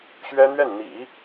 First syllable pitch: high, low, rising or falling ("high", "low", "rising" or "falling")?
high